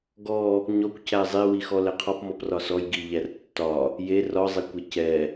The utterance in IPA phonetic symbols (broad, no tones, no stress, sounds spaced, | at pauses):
ɡ ɔ | ɲ ɔ kʷ c æ zˤ e w i x ɔ l ɛ qʰ ɒ p m ɔ p r ɒ s ɔ j ɡ i ʎ æ r tː ɒ | j e r ɒ zˤ e kʷ e c ɛ